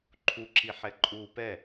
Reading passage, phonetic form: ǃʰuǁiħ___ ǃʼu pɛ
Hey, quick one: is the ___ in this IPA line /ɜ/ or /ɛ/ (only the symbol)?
ɛ